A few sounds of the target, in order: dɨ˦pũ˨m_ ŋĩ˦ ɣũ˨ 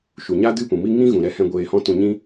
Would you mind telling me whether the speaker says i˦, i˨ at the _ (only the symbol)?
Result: i˦